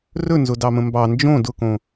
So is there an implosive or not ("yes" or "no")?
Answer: no